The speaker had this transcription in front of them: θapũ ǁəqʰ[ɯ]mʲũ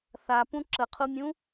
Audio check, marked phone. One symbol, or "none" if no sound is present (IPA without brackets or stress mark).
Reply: u